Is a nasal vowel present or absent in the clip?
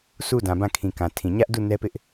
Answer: present